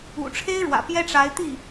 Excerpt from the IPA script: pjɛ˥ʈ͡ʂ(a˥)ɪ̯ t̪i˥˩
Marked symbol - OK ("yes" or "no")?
no